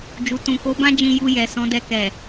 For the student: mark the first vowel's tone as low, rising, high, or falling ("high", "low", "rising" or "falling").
low